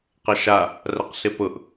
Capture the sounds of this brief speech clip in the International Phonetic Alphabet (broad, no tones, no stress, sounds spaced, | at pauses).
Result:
q ɐ ʃ a | r ɐ q s ɪ p ʊ ʔ